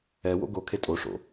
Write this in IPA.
ɛ w o̰ ɡ o kʰ e tʼ o ʂ o̰

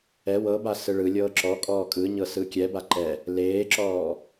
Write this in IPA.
ɛ w ɤ b a s ɯ ɭ ɯ lʲ ɤː ǁ ɔ kʼ ɔː kʼ ɯ ɲ ɤ s ɯ kʲ ɛ b a ǃ ɛ | l eː ǁ ɔː

